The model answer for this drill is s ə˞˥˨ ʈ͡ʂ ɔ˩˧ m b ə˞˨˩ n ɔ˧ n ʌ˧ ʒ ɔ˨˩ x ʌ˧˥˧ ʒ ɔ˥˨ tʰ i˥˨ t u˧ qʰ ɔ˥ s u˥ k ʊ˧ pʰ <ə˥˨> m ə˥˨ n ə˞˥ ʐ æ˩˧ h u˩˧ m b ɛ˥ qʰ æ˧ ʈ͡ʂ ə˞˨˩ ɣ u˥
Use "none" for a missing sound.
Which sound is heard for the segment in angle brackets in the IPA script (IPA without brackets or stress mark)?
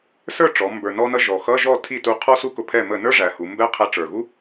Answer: ɛ˥˨